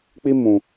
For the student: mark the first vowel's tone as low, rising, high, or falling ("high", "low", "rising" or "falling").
high